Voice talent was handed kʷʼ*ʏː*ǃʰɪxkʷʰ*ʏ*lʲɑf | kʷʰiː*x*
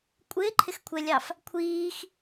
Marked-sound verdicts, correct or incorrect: incorrect: ɪː, incorrect: ɛ, correct

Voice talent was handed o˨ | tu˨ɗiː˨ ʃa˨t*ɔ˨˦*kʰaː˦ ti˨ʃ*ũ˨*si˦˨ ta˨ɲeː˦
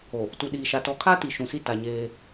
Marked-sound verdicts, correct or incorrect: correct, correct

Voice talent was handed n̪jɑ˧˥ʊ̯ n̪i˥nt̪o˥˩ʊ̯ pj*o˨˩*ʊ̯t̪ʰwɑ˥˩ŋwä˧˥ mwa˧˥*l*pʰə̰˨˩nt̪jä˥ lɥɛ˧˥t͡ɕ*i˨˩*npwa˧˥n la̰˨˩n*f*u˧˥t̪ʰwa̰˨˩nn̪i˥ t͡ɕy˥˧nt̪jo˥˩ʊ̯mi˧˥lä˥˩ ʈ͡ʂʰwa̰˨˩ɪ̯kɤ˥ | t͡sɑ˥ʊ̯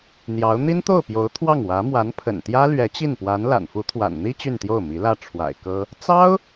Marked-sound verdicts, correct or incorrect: incorrect: o˧˥, incorrect: n, incorrect: i˥˩, correct

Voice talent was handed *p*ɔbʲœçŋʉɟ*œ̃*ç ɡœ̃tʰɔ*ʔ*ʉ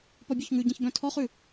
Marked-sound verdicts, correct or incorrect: correct, incorrect: ɛ̃, incorrect: χ

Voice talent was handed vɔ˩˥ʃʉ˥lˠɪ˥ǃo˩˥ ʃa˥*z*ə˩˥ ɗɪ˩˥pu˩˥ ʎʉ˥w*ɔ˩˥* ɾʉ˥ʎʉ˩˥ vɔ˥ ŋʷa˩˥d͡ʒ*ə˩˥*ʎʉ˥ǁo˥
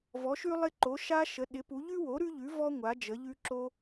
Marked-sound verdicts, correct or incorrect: incorrect: ʃ, incorrect: o˩˥, correct

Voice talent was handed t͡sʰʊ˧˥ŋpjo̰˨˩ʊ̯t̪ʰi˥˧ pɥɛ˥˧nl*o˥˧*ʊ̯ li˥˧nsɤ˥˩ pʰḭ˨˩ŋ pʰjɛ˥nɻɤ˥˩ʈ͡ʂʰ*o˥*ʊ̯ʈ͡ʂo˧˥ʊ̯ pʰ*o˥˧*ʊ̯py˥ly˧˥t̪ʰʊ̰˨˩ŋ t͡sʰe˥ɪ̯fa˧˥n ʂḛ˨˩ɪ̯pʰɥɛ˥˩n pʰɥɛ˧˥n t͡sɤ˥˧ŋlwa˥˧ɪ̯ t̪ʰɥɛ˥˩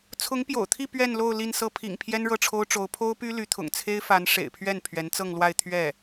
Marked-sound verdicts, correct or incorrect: correct, correct, incorrect: o˥

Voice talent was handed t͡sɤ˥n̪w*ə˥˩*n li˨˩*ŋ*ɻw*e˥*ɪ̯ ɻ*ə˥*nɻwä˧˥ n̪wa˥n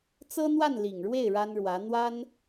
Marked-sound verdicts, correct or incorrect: incorrect: a˥˩, correct, incorrect: e˥˩, incorrect: a˥

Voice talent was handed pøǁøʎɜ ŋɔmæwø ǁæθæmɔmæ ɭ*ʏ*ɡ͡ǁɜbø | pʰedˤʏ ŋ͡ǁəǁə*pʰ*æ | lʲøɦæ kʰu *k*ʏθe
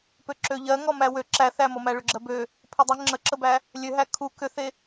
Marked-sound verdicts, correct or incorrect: correct, incorrect: b, correct

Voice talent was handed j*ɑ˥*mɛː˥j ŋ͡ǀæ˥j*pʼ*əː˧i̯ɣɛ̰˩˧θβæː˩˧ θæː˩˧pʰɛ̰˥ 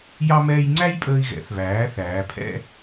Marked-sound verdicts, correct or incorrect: correct, correct

